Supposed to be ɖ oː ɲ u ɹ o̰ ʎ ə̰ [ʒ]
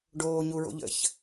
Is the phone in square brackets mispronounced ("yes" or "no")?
yes